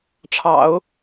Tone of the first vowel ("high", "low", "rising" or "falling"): low